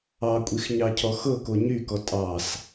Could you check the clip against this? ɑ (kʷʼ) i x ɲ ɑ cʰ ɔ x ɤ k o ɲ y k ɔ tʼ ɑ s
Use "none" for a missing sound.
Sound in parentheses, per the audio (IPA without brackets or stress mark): kʷʼ